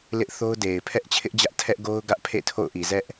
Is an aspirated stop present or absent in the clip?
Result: present